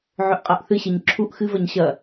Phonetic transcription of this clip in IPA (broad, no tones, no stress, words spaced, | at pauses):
ʕɵʔqʼaʔθɨɕeɲ ǁʰuʔ xɨvɐɲ ɕɐ